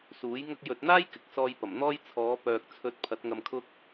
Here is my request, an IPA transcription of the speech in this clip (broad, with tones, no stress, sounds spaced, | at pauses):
s uː˨˥ j ŋ ɐ˧ k̚ j ɵ˨ t̚ n̪ aː˥ j k ɪ˨ k̚ s ɔː˧ j p ɐ˨˩ m n̪ ɔː˥ j t͡sʰ ɔː˨˧ p œː˨ k̚ t͡sʰ ɵ˨˥ t̚ pʰ ɐ˨˥ t̚ ŋ ɐ˧ m kʰ ʊ˥ k̚